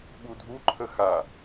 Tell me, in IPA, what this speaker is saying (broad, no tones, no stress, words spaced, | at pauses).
ɓudʱu ǃʰəxa